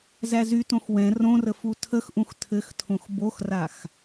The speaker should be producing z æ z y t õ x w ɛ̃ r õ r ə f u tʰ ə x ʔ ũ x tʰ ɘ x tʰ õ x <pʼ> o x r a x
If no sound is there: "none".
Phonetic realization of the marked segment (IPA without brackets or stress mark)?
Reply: b